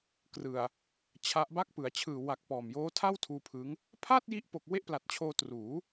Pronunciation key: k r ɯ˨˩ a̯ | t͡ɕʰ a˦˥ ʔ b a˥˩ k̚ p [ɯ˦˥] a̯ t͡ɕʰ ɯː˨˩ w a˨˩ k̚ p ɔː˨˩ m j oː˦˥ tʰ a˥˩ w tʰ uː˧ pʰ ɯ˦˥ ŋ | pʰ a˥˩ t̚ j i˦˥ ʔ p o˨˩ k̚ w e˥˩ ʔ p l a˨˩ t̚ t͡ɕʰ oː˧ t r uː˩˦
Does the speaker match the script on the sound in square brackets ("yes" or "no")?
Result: no